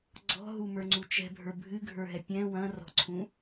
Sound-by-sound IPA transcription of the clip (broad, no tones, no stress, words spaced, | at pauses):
ɡ͡ǀɔ̤ɦumə˞ŋ͡ǀu t͡ʃɛ̤bʱə˞ bʱɨɡʱə˞ɦɛ pʲɛ̃ wɐ̃rɔ̤ǀʰũ